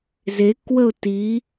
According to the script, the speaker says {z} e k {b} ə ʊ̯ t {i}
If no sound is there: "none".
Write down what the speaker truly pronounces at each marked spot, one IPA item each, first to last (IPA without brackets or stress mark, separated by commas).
z, w, i